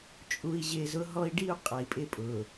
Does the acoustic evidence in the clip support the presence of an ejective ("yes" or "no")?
yes